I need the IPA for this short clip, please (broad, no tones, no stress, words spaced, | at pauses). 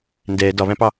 ndɛ dɒβæ̃pɑ